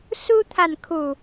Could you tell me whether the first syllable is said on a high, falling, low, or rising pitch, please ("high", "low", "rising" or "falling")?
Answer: high